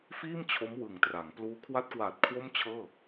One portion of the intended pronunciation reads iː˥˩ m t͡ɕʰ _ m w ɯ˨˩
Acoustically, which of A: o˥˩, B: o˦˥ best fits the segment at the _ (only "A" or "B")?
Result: B